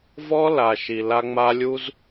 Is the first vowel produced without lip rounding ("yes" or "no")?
no